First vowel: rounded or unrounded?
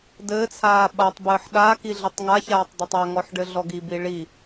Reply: unrounded